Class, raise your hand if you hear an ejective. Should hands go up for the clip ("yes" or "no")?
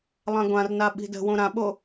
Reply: no